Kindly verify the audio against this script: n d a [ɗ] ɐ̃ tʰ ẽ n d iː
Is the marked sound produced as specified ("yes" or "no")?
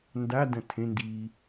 no